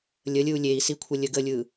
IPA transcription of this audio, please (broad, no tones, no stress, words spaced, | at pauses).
lʲəlʲɯu̯ lʲei̯si kʷʰəlʲəɡəlʲɯ